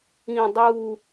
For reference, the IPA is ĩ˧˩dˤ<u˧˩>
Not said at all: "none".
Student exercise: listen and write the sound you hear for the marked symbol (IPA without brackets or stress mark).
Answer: u˧˩